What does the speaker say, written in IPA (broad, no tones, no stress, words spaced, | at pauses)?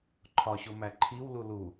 ǃʰɒɕo mæǃʰiwlu lu